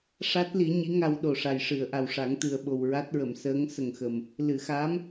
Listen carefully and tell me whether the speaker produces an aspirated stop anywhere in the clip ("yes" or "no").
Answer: no